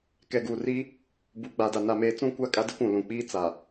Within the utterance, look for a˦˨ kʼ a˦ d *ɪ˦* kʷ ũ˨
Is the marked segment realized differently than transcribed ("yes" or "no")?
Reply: no